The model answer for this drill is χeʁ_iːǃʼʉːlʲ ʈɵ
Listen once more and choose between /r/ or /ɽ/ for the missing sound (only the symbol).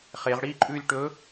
ɽ